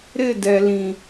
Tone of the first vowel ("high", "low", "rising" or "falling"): falling